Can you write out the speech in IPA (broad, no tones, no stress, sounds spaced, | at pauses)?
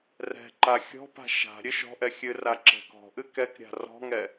r ɛ̤ ǃ a xʲ ɔ̤ p a̤ ʃ a̤ ɾʲ ɨ ʃ ɔ̤ ʔ ɛ xʲ ɨ r a ǁ ɛ̤ k ɔ̤ ʔ ɨ k ɛ k ɾʲ a̤ r ɔ̤ ŋ ɛ